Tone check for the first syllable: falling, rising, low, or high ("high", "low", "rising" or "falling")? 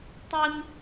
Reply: high